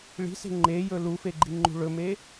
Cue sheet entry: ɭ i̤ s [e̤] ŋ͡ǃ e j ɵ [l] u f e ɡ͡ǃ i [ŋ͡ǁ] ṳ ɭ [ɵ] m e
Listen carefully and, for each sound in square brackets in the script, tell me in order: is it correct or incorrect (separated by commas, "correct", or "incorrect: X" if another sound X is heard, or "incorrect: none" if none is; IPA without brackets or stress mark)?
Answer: correct, correct, incorrect: ŋ͡ǃ, correct